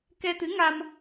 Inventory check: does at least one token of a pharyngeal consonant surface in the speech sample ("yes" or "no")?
no